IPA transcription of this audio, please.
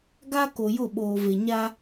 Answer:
ɡ a˦ k o˨ j ʊ˦˨ ɓ oː˨ v e˨ ɲ a˦

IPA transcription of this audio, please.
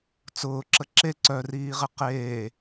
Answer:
t͡s ʊː ǁ ə ǁ e ǀ œ r iː ʁ ɪ q eː

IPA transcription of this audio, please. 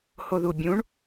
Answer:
h o ð u bʲ ũ ɳ

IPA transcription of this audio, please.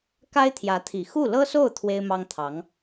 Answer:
k a˥ ɪ̯ t̪ʰ j ä˧˥ t̪ʰ i˨˩ x u˥˩ l ɤ˥ s o˥˩ ʊ̯ t̪ʰ w e˥ ɪ̯ m ɑ˥ ŋ t̪ʰ ɑ˧˥ ŋ

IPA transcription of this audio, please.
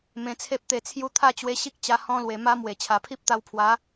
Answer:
m ẽ˧ t͡sʰ e˦ p̚ t̪ e˧ t͡sʰ j u˦ t̪ʰ a˥˧ t͡ɕ w e˧ ɕ i˦ k̚ t͡ɕ a˧ h ɔ̃˧ l w e˨˩ m a˧ m w e˨˩ t͡ɕʰ a˨˩ pʰ i˦ p̚ t̪ a˧ w pʰ w a˨˦

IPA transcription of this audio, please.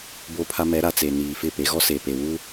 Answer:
b o˦ pʰ a˦ m ɛ˨˦ ɾ a˨ t͡s e˨ n iː˨ f ɪ˦˨ p e˨˦ ɣ ɔ˦ s eː˨ p e˨ w u˦

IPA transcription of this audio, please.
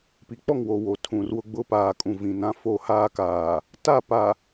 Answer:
p i˨ k͡p ɔ˦˨ ŋ w o˨ w o˨ tʰ ũ˨ r w ʊ˦ ɡ͡b ʊ˦ p aː˨ kʼ ũ˨ v ĩ˨ n ã˦ f o˦˨ h aː˦ k aː˨ | t a˦˨ p a˨

